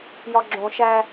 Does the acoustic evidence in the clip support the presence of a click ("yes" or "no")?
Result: yes